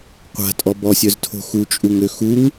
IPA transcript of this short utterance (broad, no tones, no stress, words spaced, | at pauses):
qʷa̤tʼɔ bɔsʲœztʰo̤ xut͡ʃʼuŋø xuŋ